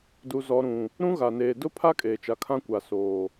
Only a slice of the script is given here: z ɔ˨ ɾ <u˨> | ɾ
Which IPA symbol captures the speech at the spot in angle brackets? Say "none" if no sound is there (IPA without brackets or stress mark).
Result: ũ˨